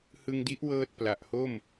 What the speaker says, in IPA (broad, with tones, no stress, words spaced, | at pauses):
hɯ˧ŋdi˦˥ʔ wɤː˥˩t̚ pla˨˩ʔho˥˩m